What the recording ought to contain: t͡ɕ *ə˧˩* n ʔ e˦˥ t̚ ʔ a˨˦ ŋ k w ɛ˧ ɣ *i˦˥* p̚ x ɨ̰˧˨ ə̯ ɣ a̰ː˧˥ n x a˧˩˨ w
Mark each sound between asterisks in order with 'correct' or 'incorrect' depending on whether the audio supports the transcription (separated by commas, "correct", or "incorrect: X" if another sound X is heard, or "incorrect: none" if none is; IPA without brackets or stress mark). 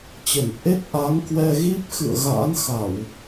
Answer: correct, correct